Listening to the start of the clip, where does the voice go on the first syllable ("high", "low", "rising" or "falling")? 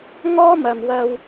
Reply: high